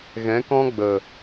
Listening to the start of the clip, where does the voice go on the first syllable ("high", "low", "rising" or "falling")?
rising